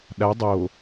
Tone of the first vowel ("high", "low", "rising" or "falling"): rising